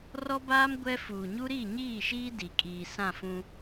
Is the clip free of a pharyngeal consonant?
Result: yes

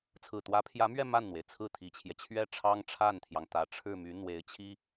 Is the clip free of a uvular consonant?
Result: yes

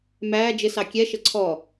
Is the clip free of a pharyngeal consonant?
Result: yes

